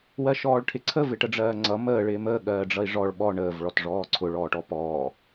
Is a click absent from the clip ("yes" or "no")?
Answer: no